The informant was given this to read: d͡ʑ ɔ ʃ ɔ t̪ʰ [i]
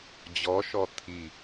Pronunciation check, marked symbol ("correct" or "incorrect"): correct